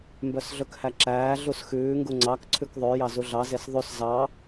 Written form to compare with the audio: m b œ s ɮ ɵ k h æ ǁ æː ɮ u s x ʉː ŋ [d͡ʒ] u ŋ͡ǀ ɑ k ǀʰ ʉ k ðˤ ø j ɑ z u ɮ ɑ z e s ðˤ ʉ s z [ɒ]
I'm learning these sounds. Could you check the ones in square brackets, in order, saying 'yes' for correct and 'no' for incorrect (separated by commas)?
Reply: no, no